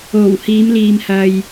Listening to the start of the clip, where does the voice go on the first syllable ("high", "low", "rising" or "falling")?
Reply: low